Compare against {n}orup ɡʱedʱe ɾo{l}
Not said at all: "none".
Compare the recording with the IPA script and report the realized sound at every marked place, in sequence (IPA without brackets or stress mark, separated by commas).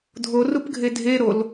dʱ, l